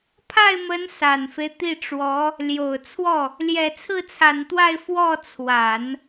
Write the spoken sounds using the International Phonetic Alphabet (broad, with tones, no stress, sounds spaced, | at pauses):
pʰ a˥˩ ɪ̯ m ə˧˥ n s a˨˩ n f e˦ ɪ̯ t̪ i˥˩ ʈ͡ʂ w ɔ˧˥ | l j o˨˩ ʊ̯ t͡sʰ w ɔ˥˩ | l j ɛ˨˩ t͡sʰ ɹ̩˥˩ t͡sʰ a˨˩ n t̪ w a˥˧ ɪ̯ f w ɔ˥˩ t͡sʰ w a˨˩˦ n